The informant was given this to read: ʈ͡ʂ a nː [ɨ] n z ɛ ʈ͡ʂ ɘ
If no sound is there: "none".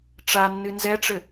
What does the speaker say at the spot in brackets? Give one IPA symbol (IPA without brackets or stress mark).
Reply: ɨ